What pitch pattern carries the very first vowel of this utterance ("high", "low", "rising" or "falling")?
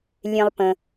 high